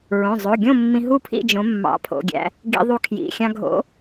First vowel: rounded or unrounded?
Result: rounded